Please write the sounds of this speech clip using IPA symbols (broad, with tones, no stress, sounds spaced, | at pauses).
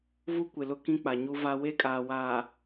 v u˦ kʷ ɪ˨ l ʊ˦ k ĩ˦ k͡p a˨ ɲ u˦ v a˦ w e˦ kʼ aː˨ w aː˨